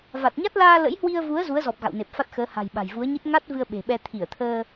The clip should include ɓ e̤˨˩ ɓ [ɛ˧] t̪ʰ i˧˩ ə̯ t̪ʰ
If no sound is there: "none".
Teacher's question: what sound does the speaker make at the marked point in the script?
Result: ɛ˧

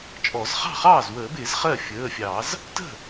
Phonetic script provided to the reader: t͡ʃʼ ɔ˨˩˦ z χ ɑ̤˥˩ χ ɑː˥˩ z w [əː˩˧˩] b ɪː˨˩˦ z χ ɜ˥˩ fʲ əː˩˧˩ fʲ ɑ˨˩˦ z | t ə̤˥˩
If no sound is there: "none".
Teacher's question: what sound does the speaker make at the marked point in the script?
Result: əː˨˩˦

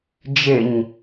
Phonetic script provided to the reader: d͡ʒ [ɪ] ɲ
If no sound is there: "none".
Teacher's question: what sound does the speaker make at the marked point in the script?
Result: ɪ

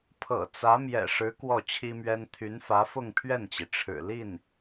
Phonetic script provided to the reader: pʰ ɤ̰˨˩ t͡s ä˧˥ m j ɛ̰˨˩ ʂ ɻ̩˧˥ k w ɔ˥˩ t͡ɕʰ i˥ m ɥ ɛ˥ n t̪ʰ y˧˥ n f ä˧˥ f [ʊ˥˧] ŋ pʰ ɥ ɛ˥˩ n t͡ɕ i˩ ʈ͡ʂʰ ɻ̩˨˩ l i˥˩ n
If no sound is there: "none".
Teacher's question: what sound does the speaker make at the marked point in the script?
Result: ʊ˥˧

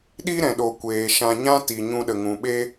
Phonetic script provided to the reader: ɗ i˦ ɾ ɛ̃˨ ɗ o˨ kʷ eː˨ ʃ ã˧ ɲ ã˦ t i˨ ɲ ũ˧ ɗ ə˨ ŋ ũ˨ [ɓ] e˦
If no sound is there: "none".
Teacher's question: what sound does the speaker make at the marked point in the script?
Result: ɓ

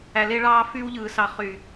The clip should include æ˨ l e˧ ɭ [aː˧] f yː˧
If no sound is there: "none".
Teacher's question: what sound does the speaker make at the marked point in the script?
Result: ɑː˧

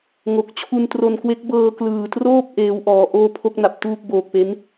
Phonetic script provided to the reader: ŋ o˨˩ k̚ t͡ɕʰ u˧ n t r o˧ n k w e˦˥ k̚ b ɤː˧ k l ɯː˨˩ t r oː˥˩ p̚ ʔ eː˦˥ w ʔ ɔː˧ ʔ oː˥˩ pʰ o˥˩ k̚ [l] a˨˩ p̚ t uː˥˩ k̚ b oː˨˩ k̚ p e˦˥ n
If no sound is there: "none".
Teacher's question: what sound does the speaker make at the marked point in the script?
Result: n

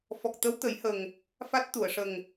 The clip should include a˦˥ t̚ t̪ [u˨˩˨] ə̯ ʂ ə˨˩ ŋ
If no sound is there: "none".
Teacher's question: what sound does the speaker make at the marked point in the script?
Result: u˨˩˨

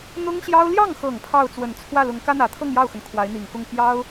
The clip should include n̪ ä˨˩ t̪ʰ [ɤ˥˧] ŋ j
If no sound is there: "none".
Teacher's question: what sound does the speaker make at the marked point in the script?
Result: ɤ˥˧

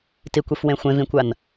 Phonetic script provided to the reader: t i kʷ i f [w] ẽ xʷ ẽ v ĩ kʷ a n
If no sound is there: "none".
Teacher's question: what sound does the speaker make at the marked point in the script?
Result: w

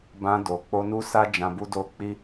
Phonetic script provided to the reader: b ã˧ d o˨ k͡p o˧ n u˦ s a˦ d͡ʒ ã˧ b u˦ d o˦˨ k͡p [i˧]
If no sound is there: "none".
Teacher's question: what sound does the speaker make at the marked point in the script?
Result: i˧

